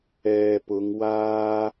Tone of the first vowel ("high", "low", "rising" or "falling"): low